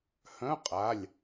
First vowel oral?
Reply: no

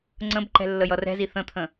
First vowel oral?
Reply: no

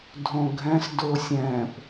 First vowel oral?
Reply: no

